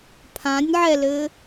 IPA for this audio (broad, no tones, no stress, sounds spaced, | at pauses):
pʰ ã nʲ ʕ ɛ l ɘ